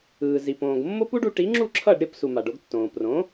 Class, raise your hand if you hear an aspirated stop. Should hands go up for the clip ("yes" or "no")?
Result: yes